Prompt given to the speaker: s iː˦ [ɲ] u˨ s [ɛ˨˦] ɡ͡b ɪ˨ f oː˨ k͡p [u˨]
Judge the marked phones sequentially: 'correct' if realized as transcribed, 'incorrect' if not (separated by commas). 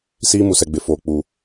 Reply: incorrect, incorrect, correct